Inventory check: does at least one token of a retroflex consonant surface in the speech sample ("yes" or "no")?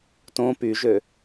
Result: no